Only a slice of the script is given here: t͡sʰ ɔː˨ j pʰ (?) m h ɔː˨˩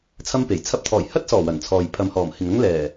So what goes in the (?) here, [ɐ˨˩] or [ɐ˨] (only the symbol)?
ɐ˨